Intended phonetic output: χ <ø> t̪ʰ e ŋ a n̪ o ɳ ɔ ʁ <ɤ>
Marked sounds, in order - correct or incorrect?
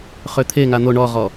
correct, incorrect

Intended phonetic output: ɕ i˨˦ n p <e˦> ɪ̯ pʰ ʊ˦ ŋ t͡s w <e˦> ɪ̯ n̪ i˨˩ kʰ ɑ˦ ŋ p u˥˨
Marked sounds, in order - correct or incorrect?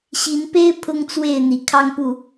correct, incorrect

